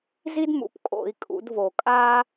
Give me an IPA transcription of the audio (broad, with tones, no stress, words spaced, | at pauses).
zi˦dmṵ˨˩˦p kʼo̰˨˩˦i̯kʼṵ˨˩˦dvo˨˩˦ kʼaː˦